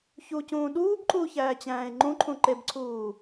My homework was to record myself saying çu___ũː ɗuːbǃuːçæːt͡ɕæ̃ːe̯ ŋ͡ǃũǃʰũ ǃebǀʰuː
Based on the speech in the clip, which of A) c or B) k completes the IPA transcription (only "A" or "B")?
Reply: A